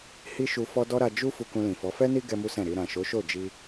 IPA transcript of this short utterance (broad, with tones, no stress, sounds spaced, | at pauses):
h i˦ ʃ u˧ f ɔ˦ d ɔ˦ ɾ a˧ d͡ʒ u˦ f u˧ k ũ˧ l ĩ˨ f ɔ˨˦ f ɛ˦ n i˦ ɡ ɛ˦ m u˦ s ɛ̃˦˨ ɾ i˧ ɾ ã˨ ʃ o˨˦ ʃ o˦˨ d͡ʒ i˧